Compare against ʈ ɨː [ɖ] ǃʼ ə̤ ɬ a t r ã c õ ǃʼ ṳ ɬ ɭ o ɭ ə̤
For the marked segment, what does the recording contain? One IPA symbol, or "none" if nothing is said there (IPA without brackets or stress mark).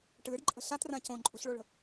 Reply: ɖ